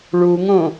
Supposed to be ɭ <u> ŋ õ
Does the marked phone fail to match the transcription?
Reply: no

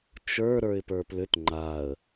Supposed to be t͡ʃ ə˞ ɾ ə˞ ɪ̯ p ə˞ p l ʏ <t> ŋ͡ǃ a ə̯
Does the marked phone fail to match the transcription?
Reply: no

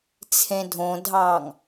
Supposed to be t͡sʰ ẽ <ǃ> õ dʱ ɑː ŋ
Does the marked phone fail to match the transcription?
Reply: yes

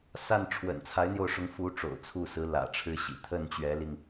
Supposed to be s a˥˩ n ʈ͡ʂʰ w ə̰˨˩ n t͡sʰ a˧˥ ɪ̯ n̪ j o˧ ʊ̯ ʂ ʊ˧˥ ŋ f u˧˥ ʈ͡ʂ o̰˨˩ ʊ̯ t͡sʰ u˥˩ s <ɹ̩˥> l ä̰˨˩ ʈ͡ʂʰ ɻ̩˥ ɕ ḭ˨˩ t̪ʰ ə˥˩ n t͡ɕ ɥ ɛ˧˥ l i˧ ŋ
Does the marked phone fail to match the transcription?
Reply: yes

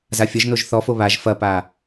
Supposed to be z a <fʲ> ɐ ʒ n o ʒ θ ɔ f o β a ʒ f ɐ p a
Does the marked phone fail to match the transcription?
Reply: no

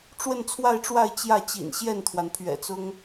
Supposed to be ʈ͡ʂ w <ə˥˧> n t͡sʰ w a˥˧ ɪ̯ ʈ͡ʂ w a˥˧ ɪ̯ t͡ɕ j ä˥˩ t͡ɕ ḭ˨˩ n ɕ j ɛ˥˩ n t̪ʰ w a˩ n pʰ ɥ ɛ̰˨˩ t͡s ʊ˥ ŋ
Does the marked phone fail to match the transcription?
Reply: no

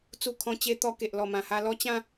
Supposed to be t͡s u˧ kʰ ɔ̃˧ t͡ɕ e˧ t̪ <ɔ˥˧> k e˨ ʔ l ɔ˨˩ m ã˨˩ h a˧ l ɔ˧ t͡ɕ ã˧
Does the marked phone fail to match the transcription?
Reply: yes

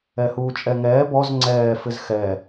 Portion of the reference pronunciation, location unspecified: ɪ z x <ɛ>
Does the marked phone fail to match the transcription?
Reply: no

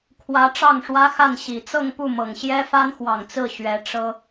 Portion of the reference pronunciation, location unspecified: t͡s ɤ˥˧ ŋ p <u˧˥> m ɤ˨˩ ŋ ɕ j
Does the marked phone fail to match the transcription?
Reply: yes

